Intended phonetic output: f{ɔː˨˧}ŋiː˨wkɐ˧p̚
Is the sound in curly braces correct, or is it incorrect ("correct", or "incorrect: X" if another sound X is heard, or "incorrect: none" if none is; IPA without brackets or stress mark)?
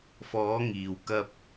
correct